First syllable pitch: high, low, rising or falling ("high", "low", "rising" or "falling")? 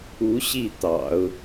rising